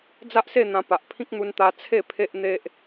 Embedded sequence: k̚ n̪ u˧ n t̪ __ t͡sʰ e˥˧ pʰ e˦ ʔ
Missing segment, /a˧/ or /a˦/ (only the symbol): a˧